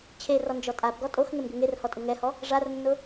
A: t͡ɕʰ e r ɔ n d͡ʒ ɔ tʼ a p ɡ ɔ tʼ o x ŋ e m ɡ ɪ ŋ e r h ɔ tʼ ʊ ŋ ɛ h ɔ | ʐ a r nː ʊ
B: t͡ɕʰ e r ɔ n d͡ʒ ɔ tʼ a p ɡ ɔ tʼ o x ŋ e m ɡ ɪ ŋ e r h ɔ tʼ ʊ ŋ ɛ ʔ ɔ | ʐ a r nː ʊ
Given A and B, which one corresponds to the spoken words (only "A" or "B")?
A